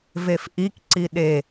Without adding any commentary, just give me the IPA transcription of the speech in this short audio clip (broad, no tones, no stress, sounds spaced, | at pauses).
v e f ʔ i k ǀ i ɗ e